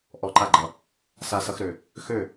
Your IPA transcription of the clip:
ʔ ɔ˧ ǃ a˥˩ ɡ͡ǃ ʌ˨˩ | s a˧ s ʌ˧ x ɾ ø˨˩ | x ø˥˩

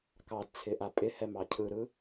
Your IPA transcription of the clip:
k ɑ d t͡sʰ ɪ ʔ a pʼ ɪ h ɛ m ɑ cʰ ɯ ɾ ɯ

